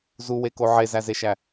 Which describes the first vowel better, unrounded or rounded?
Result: rounded